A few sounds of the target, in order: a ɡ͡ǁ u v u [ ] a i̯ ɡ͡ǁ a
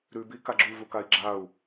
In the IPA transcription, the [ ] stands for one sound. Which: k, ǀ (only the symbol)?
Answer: k